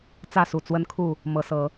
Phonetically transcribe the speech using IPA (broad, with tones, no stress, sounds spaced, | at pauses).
t͡s ä˥˨ s u˨˩ t͡s w ə˦ n kʰ u˥˨ | m ɤ˨˦ s ɤ˨˦